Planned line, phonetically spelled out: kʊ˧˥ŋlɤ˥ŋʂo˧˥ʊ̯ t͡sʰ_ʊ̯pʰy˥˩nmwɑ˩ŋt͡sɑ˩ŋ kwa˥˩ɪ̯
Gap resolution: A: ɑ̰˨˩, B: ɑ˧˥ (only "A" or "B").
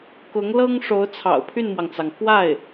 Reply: A